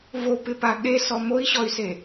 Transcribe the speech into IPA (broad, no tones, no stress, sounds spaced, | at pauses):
v o p ɪ p a ɠ e s ɔ m o i̯ ɕ ɔ y̯ s e